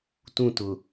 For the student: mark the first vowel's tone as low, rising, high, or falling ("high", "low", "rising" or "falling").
falling